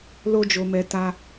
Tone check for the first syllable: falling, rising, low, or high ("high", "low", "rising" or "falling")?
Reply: high